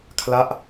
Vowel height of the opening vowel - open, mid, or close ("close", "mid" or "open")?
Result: open